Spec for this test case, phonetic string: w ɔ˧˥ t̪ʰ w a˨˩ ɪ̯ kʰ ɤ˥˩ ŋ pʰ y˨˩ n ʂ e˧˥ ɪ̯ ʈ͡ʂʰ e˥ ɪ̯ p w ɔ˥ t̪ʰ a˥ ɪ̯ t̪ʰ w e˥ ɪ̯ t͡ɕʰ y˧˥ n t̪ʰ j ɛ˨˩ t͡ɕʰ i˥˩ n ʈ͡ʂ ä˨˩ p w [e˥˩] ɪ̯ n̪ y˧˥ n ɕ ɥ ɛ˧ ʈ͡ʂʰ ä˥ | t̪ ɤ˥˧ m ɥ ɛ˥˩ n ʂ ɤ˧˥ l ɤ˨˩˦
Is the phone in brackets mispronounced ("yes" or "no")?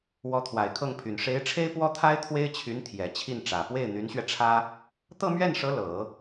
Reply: no